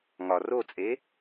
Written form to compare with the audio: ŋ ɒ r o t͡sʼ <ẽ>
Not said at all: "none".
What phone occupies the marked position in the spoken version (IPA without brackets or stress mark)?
e